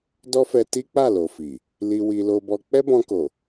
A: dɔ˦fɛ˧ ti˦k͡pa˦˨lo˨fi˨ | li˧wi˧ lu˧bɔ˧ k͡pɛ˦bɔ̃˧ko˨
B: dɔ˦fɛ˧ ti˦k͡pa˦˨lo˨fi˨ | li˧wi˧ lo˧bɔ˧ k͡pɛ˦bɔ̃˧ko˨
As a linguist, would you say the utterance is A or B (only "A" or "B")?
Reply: B